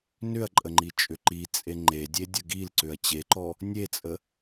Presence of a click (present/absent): present